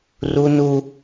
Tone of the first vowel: high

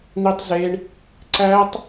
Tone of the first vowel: high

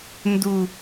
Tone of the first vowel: low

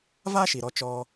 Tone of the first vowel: high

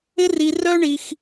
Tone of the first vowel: high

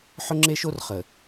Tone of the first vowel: high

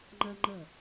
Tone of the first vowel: high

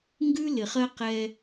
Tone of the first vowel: high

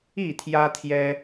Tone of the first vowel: falling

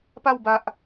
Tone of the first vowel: falling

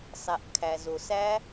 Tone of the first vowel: low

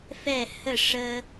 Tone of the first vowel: falling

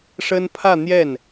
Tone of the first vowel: high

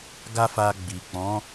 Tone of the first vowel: high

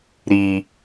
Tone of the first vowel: low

